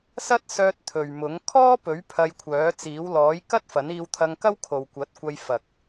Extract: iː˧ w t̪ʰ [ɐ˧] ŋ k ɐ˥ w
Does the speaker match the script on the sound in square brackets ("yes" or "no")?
yes